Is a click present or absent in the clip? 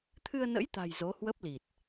absent